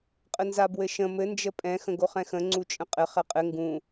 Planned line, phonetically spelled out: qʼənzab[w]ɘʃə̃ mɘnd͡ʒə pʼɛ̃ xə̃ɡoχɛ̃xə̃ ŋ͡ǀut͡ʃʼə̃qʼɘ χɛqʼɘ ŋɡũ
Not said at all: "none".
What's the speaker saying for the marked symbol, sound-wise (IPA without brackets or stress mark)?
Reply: w